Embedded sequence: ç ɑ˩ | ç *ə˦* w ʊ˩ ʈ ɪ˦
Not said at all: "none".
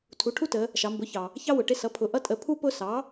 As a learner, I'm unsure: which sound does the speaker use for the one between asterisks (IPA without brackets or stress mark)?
ɑ˦